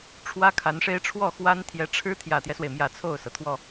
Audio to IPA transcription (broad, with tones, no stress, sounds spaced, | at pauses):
ʈ͡ʂʰ w ä˥ kʰ a˧˥ n ʂ e˥ ɪ̯ ʈ͡ʂʰ w ɔ˥˩ x w a˥ n t̪ʰ j ɛ˧˥ ʈ͡ʂʰ ɻ̩˥ t̪ʰ j ä˨˩ t̪ j ɛ˦ s w e˩ ɪ̯ m j ä˨˩ t͡sʰ o˥˩ ʊ̯ s ɤ˩ t̪ʰ w ɔ˥˩